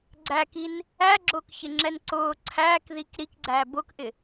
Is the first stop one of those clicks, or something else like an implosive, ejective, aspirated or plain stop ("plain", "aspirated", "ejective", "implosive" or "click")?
click